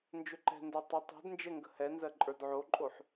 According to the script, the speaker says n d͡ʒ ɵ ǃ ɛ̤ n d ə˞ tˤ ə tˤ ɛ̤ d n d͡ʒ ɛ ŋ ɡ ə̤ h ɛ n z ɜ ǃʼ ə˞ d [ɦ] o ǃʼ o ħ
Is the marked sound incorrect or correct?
incorrect